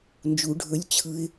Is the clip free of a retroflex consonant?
no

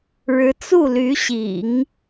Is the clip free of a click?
yes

